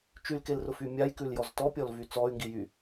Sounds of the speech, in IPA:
t͡ʃ y l k e l r ʊ f y mʲ a j k ʉ l j ɔ z t ɔ pʲ ɔ l v y t͡s ɔ y̯ ŋ ɡ i j y

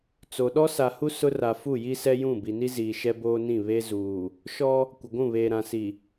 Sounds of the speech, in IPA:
t͡s o˨ ɗ ɔ˦ s a˨ h u˦ s ʊ˦ r a˨ f u˦˨ j i˦ s ɛ˦ j ũ˦˨ b i˨ n i˦ z iː˨ ʃ ɛ˦ b oː˦ n ĩ˦˨ β e˦ z uː˨ | ʃ ɔ˦ | kʷ ɪ˨ ɡʷ ũ˦˨ β eː˨ ɾ ã˨ s i˨

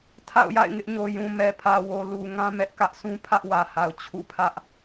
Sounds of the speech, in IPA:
tʰ a̰˦˨ ʊ̯ j a̰˦˨ ɪ̯ ŋ ɪ˦ ʔ ɲ o˨ j ũ˨ m ɛ˨ pʰ ä˨ w o˨ l u˨ ŋ ã˦ m ɛ˦ ʔ k ä˦ ʔ sʰ ũ˦ pʰ ä˦ ʔ w ä˨ h a˨ ʊ̯ t͡ɕʰ ṵ˦˨ pʰ ä˦ ʔ

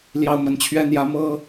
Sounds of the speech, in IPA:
l j ɑ˦ ʊ̯ m ə˨˦ n t͡ɕʰ ɥ ɛ˦ n̪ j ä˦ m ɤ˦

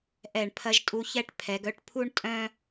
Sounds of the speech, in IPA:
ʔ ɛ˧˩ ɳ pʰ ɐ˧ ʒ tʼ u˧ ç ɛ˥˧ ʈ pʰ ɛ˩˧ ɡ œ˥ ʈ pʰ u˥ ɳ tʼ œ̃˥

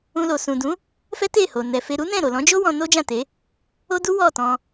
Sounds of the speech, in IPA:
ũ˧ l o˨ s ũ˨ d ũ˨˦ | f ɛ˦ t e˦˨ h o˨ n ɛ˨ f e˧ ɾ u˦ n ɛ̃˦˨ ɾ o˨ l ɔ̃˨˦ d͡ʒ o˦ w ɔ̃˧ n o˦ d͡ʒ ã˦˨ t e˨˦ | o˦ d u˦ w ɔ˦˨ t ɔ̃˧

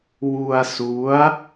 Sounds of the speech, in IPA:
w u˧ a̯ s u˦˥ a̯

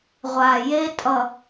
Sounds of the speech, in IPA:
ʁʷ a˨ j e˦ tʼ ʌ˨

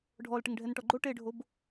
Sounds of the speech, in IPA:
ɖʱ ɔ l ʈ ɪ ŋ ɖʱ ɛ n ʈ ɔ ɡ͡ǃ o ʈ e ɖʱ o b

